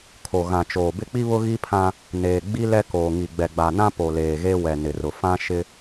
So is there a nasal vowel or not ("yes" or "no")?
yes